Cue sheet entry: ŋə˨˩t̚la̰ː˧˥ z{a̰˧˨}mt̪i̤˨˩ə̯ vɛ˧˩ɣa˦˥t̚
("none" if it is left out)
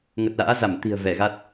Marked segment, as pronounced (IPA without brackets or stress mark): a˧˩